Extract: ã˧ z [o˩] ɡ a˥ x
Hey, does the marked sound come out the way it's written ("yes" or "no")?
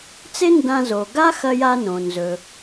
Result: yes